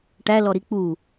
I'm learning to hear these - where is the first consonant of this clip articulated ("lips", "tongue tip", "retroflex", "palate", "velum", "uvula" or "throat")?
retroflex